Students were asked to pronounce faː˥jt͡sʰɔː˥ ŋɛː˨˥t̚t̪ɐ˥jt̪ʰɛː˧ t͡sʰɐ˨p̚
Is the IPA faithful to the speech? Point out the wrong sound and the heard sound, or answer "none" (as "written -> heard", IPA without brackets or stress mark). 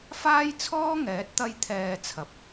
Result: none